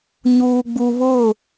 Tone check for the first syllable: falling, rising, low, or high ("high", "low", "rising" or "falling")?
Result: high